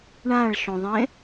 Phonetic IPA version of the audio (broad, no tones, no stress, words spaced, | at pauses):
ɳãɭʃõðˤẽ